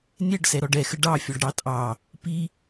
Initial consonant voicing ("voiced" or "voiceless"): voiced